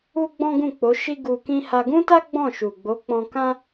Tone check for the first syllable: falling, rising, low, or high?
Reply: high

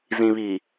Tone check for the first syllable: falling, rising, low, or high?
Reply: low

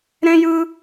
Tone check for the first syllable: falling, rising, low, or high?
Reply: high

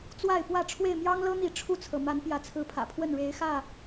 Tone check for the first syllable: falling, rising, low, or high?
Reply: falling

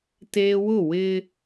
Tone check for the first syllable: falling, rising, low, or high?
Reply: high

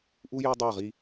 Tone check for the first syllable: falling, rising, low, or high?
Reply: high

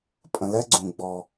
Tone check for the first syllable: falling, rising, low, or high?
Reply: low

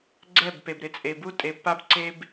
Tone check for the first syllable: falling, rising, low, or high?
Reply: falling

